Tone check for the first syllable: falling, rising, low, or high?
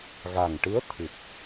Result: low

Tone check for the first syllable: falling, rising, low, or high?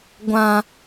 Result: high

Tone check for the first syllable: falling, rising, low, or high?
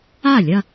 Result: falling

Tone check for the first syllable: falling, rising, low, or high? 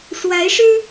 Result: rising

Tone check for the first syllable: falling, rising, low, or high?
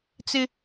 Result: high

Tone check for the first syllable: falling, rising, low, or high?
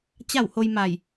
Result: falling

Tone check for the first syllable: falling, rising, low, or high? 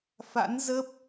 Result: rising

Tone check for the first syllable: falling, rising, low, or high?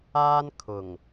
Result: high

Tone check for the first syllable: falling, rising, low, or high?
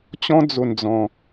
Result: high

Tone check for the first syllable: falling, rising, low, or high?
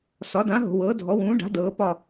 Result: rising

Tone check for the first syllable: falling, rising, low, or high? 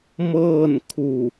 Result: falling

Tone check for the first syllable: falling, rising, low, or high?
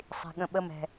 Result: low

